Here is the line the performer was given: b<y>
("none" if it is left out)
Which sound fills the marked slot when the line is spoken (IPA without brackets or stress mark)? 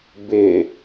ɪ